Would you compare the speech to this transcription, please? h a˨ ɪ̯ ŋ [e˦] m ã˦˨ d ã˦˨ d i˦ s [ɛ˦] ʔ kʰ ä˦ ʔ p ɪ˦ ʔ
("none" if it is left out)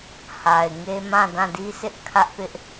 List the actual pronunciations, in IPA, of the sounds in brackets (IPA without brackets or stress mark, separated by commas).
e˦, ɪ˦